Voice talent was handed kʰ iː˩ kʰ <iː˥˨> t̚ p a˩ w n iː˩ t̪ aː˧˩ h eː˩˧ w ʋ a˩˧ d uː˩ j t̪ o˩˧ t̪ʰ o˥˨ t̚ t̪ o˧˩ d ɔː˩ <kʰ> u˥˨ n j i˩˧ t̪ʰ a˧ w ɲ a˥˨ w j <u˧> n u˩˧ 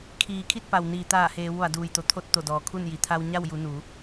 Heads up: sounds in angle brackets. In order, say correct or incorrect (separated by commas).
incorrect, correct, incorrect